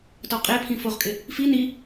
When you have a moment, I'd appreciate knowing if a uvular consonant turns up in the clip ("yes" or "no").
yes